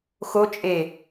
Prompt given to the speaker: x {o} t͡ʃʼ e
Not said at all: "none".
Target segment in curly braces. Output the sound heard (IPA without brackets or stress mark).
o